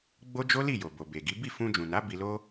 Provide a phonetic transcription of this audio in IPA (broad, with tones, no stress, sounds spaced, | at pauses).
ɡ͡b o˦ d͡ʒ o˦ l i˦˨ j o˨ b o˨ b e˨ ɡ i˨˦ b i˦˨ f ũ˧ d͡ʒ ũ˨ n a˨˦ b i˧ l o˦